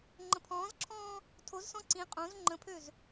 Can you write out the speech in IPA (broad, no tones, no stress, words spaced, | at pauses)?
ŋ͡ǃə̃pʰɔ̃ːzǁʰɔ̃ː | tʰozsɔ̃ ǀĩ qʼõz ŋ͡ǃə̃pʰøz